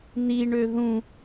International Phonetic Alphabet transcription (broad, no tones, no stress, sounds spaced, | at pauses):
n̪ i ɳ ø ð ũ